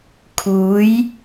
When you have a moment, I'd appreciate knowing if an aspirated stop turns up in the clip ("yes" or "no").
yes